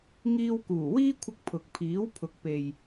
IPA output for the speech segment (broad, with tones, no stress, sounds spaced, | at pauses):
ŋ iː˧ w k uː˨˩ w iː˥ kʷʰ ɪ˧ k̚ pʰ ʊ˨ k̚ pʰ iː˨˥ w pʰ ʊ˨ k̚ p e˨ j